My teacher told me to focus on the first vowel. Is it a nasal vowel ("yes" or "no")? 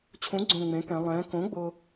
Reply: yes